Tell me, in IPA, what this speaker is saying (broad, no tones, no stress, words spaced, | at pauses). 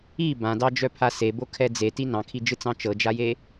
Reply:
i bãdɑd͡ʒœpʰa sebokʰɛ d͡zeti nɑ̃kʰid͡ʒɯt͡sɑ̃ t͡ʃɤd͡ʒaje